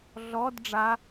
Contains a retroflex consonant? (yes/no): yes